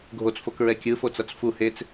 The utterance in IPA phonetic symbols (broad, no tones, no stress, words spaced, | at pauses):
ɡʱot͡sfokɹɛ kʲɯfot͡sʌt͡s fu het͡s